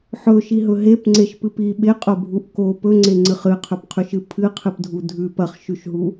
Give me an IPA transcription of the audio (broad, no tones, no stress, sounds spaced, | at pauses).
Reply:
ħ ɵ ʃ i ɦ ɵ ɦ e p ŋ͡ǀ e ʃ p ɨ p i ɓ e qʼ o bʱ u ʔ k o p ɵ ŋ͡ǀ e ŋ͡ǀ ɨ χ ɨ qʰ ɵ p qʰ ʉ ʃ ɨ pʰ ɨ qʰ ɨ p dʱ u dʱ ʉ p ɐ χ ʃ ʉ ʃ ɦ u